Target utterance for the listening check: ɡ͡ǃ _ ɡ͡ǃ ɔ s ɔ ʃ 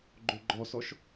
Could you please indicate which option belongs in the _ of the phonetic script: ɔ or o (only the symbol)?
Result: o